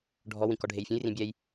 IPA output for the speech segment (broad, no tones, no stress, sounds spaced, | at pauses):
ɖʱ ɔ w ĩ k ɔ ɖʱ e j fʲ ũ j r ĩ bʲ ɛ j